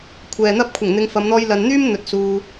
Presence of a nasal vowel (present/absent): absent